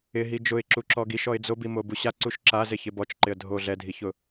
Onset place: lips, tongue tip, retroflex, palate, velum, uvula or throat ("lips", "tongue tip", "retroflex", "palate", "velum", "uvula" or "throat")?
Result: throat